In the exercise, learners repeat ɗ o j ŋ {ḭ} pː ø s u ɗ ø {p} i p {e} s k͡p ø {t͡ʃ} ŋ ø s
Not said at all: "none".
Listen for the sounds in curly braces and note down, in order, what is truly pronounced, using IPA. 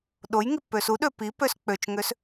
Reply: i, p, ø, t͡ʃ

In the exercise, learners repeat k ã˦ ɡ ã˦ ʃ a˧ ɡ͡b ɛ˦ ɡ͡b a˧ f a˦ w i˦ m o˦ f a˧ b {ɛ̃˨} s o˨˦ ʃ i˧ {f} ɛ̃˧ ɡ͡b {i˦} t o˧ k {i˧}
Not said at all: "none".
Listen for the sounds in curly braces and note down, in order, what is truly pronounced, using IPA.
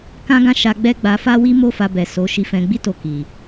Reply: ɛ˨, f, i˦, i˨

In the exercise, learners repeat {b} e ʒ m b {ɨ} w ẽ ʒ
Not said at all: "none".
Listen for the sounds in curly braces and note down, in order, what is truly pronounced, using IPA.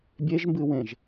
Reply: bʲ, ɨ

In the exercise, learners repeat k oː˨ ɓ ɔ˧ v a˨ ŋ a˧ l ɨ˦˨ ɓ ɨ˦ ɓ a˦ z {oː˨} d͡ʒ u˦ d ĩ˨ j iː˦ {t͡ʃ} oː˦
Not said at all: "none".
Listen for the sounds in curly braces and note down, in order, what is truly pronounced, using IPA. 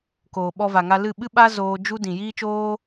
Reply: oː˧, t͡ʃ

